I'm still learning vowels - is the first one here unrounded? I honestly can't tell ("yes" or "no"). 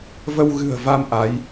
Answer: yes